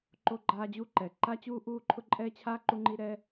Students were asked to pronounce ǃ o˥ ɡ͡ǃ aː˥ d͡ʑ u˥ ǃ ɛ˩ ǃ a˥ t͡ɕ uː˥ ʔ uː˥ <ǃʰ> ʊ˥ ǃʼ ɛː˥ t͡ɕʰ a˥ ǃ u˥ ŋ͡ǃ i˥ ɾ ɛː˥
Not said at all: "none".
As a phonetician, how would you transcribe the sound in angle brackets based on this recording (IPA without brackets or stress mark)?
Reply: ǃʰ